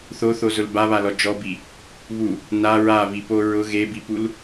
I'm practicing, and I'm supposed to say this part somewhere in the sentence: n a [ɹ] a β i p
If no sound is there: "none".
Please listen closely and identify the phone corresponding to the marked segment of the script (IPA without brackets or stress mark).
ɹ